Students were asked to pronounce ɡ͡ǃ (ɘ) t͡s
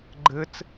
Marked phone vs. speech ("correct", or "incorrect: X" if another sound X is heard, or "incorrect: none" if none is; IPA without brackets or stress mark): correct